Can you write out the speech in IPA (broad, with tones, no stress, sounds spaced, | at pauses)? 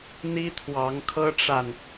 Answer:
n̪ i˥ t̪ʰ w ɑ˧˥ ŋ kʰ ɤ˥ ʈ͡ʂ a˨ n